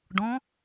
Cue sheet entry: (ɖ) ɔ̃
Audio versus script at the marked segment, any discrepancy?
no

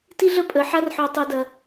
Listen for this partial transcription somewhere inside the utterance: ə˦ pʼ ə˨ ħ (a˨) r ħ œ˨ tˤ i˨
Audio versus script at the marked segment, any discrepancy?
yes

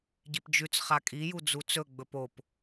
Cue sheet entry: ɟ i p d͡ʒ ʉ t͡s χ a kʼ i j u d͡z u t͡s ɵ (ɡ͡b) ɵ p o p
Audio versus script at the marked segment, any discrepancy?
no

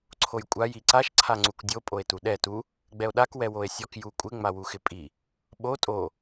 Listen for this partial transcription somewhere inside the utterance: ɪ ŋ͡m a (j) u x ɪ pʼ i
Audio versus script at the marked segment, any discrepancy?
yes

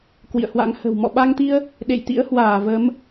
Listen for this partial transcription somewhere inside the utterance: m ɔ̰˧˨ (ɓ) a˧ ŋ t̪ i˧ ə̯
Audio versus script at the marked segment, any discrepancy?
no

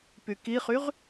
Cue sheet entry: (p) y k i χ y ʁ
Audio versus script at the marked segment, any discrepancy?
no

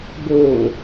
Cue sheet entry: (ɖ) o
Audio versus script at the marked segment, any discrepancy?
yes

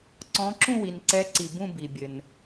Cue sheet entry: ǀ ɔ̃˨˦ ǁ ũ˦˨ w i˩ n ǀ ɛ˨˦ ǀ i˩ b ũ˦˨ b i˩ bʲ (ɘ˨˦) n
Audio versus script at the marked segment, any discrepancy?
yes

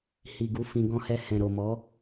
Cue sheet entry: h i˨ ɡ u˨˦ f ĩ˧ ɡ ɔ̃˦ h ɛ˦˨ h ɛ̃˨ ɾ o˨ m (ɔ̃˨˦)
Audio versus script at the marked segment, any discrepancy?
yes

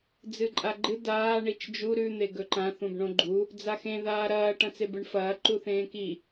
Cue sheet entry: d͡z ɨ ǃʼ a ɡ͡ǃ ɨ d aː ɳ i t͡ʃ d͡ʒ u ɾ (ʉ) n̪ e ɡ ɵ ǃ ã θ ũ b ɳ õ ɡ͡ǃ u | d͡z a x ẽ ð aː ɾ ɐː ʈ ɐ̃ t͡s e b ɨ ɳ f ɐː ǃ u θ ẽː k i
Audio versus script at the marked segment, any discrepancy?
no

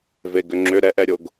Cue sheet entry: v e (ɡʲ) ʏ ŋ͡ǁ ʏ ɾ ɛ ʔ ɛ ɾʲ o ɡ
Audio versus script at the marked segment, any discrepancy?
yes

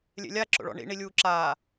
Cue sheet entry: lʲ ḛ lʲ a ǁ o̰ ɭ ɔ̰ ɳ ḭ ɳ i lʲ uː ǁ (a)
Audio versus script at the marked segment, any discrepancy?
yes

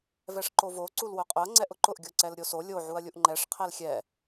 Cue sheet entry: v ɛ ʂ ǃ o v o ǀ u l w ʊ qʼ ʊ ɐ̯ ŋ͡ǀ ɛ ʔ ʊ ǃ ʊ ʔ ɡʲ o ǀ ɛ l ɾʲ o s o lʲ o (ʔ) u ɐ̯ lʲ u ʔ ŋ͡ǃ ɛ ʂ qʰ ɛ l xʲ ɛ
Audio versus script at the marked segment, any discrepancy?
yes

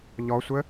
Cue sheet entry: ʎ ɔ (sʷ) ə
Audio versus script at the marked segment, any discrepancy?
no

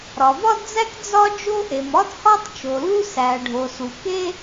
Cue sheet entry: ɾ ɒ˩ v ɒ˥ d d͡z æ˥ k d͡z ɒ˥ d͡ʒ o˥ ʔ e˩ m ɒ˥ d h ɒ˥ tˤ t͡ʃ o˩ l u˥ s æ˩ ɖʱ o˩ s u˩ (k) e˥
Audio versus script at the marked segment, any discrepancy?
no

